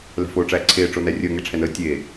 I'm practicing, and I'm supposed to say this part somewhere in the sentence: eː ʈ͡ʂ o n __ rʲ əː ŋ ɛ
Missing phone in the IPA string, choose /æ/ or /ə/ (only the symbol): æ